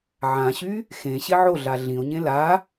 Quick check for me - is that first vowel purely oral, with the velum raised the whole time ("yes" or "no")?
no